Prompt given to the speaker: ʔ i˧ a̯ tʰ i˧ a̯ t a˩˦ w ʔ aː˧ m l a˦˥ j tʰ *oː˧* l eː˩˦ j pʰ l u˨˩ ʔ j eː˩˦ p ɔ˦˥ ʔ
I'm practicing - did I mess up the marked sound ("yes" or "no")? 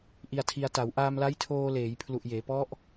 no